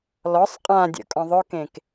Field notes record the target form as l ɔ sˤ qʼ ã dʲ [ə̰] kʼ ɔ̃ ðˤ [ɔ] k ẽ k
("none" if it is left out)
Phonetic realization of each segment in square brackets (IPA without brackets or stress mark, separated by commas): ə̰, ʊ